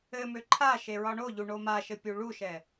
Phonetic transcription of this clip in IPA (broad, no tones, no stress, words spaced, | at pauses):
ɘmø ǃʰa ʃeɹɒɳoʎu ɳomaʃɘ pʲuɭuʃɛ